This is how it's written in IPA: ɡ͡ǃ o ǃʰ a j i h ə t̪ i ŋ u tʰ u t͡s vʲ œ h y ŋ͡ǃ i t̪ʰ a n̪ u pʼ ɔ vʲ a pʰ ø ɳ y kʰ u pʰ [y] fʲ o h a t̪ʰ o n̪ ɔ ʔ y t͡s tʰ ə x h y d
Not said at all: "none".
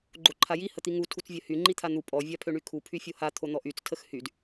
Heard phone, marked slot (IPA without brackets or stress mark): y